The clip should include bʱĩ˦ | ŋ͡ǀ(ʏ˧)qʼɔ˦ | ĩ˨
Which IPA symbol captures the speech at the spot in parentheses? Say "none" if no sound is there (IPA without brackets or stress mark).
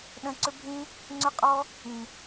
ʏ˦